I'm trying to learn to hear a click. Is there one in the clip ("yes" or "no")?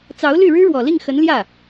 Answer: no